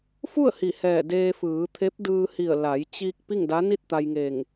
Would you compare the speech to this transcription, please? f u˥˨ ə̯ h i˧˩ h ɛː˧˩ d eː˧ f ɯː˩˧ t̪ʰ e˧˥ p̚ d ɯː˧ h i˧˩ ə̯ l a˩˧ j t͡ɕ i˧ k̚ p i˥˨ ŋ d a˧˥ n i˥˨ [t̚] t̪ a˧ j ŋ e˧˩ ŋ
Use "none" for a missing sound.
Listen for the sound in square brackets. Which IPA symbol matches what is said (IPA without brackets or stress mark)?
t̚